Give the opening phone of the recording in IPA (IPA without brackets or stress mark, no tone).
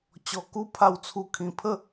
t͡ɕ